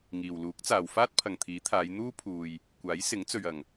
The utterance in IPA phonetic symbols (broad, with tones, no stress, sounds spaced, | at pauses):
ŋ iː˨ w l uː˨˥ k̚ t͡s aː˨ w f aː˥ t̚ pʰ ɐ˨ ŋ t̪ʰ iː˨˥ t̪ʰ aː˨˧ j n̪ uː˥ pʰ uː˨ j | kʷ aː˨˥ j s ɪ˨˥ ŋ t͡s ɵ˨ ɥ ɐ˨˩ ŋ